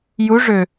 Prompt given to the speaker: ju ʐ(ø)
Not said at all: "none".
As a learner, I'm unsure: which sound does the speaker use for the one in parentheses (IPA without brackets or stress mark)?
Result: ø